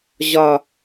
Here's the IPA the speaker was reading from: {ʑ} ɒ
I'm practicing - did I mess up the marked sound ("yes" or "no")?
no